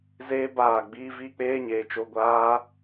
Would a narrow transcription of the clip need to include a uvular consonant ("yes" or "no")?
no